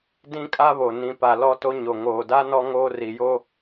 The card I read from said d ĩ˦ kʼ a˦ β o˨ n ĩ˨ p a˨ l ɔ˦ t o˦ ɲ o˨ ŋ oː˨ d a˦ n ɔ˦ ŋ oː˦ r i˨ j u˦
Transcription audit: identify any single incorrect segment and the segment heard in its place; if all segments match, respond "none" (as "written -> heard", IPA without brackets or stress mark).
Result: u˦ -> o˦